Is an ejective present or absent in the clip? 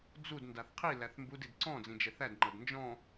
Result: absent